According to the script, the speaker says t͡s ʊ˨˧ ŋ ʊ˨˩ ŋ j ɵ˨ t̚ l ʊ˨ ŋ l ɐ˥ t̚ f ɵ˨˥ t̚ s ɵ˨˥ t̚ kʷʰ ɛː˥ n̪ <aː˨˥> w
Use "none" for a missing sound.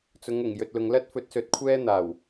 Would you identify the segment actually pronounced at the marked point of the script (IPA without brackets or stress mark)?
aː˨˩